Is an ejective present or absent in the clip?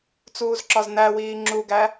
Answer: absent